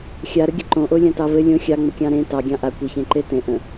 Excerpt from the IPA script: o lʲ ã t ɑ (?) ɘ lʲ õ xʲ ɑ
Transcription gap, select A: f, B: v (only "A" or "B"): B